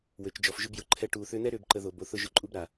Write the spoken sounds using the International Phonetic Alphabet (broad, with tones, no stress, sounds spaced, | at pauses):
w ø˨ t͡ʃ d͡ʒ ɔ˨ f ʒ ʏ˦ b j ʊ˨ ǃʰ ɛ˧ ʈ uː˨ θ ʏː˧ n̪ ɛ˦ ɾ ʏː˦ b ǃ ə˧ ð o˨ b o˨ θ ʊ˧ ʒ ʊ˦ ǃʼ u˦ b ɾ a˨